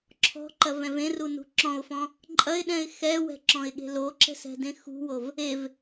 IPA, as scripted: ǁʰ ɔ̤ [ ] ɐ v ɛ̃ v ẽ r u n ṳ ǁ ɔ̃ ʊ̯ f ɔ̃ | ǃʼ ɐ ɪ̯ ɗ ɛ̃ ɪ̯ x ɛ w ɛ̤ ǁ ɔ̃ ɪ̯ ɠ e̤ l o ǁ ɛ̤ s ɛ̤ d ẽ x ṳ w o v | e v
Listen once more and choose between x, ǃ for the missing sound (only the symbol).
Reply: ǃ